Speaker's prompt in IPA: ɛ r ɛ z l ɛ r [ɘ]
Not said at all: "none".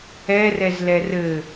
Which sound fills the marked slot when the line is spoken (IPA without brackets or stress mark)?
ɘ